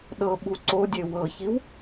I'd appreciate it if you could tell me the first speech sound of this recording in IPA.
ɗ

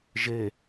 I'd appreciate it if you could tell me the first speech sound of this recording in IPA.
ʒ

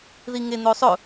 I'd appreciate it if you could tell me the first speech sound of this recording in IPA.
ð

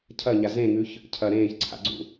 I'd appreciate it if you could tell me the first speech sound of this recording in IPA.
cʰ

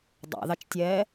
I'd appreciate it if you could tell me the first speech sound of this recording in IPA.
dˤ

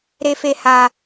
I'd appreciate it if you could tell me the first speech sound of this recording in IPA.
ɾ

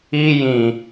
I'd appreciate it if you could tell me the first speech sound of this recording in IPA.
i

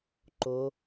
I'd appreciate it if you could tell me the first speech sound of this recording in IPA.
ǃ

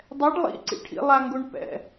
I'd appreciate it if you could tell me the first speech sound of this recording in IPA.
dˤ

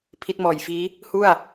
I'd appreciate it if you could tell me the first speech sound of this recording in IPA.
pʰ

